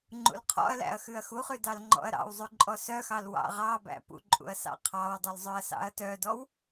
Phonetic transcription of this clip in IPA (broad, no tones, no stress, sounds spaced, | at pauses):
ŋ͡ǃ ṵ l qʰ ɔ̰ ɐ̯ l æ̰ ɐ̯ x ʉ ɐ̯ x u χ ʉ d ɑ l ŋ͡ǃ ɔ̰ ɐ̯ ɾ ɑ̰ w zˤ ʉ ǃʼ ɔ s œ x ɑ l w ɑ̰ ʁ ɑ b æ̰ p ṵ ǃʼ ṵ ɐ̯ s ɑ̰ qʰ ɑ w dˤ u l zˤ œ ɐ̯ s ɑ̰ ɐ̯ t œ d ɔ w